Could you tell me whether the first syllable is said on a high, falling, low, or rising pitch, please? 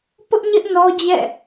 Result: high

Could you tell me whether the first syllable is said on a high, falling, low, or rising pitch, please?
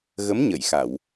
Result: rising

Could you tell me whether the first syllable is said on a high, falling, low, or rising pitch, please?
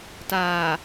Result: low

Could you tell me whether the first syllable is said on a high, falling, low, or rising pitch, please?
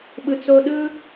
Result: low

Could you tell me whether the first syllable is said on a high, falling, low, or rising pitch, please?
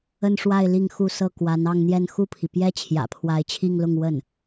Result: falling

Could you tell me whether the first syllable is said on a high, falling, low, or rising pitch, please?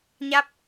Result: rising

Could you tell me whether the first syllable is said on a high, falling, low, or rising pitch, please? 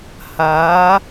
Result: rising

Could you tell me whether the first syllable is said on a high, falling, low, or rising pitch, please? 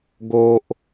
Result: high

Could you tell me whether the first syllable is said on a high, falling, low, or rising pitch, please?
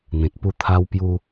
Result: low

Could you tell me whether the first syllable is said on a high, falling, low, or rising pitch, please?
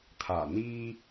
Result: low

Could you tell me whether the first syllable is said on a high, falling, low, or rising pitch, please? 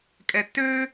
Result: low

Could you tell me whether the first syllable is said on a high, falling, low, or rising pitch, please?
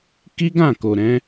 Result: high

